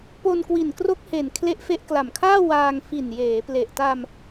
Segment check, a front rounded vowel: absent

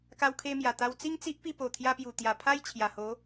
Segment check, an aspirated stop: present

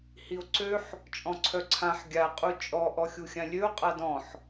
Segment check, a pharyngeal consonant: present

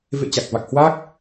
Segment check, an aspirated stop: absent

